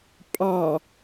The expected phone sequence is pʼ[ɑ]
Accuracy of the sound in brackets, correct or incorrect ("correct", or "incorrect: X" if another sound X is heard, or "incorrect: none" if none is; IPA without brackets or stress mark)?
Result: correct